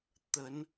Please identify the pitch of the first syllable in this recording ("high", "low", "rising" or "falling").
rising